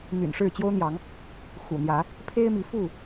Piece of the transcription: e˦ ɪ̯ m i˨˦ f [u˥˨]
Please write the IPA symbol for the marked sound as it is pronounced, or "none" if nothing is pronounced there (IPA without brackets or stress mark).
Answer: u˥˨